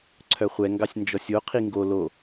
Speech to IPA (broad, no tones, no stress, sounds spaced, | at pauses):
ǀʰ œ χʷ ɛ ŋ ɡ ɑ sʲ n d͡ʒ ɔ sʲ o qʰ i ŋ ɡ o l o